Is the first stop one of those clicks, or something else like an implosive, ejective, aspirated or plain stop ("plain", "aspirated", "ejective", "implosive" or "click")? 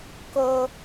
plain